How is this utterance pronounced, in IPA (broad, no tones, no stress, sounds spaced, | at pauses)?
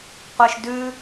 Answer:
qʷ ɛ ʃ d ʉ